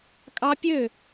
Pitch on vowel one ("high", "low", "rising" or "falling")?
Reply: high